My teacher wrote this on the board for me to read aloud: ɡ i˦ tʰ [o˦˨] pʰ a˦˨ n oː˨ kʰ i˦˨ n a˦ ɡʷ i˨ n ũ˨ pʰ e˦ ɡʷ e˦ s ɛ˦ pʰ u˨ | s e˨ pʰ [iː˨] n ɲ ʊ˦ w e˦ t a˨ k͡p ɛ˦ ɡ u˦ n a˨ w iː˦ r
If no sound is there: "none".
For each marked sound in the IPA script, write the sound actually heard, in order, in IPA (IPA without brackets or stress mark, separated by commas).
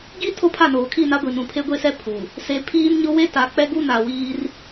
o˦, iː˦